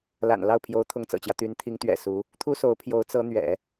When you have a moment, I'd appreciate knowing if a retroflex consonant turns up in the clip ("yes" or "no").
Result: no